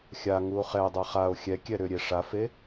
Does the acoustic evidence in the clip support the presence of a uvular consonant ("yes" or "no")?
yes